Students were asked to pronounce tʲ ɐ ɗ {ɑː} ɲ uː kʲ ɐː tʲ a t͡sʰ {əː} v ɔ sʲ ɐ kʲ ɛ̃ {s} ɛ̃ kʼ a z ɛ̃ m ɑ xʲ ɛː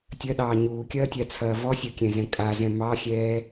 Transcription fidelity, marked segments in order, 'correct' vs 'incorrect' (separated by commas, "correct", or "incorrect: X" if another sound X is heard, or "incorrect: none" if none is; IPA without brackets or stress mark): correct, incorrect: ɐː, incorrect: z